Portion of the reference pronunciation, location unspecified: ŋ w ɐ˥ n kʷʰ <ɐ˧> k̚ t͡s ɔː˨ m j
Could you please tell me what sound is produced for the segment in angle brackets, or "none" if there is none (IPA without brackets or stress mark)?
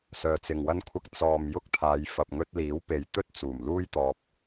ɐ˧